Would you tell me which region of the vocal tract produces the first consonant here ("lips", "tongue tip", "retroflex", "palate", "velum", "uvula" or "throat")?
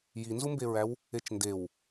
palate